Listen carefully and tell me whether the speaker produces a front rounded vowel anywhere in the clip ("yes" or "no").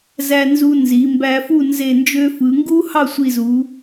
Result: yes